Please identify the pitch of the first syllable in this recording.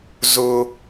high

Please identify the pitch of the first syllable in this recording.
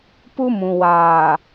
high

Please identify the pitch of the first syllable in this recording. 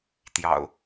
low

